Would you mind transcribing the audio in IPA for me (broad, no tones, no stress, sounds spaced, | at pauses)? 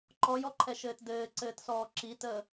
ǃ ɔ j ɔ ǃʰ ɛ ʃ ɘː t d ɘː ǀ ɘː t s ɔː ǁ i t əː